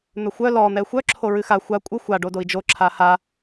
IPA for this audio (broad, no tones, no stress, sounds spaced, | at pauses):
n̪ œ xʷ œ l ɔ n̪ ɛ xʷ œ ǁʰ o ɹ ɨ x a xʷ a kʷʼ ɨ xʷ a ɖ o d o i̯ d͡ʒ o ǁʰ a h a